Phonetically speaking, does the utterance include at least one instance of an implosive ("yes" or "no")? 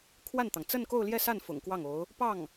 no